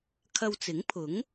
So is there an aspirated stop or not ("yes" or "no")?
yes